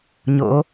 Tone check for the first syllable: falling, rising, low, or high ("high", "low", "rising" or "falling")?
rising